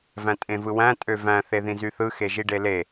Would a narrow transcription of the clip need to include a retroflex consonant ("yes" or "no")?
yes